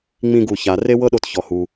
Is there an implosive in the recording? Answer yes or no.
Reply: yes